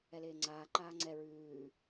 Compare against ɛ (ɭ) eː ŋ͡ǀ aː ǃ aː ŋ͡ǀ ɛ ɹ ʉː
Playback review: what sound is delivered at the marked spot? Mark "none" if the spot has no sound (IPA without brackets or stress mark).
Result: l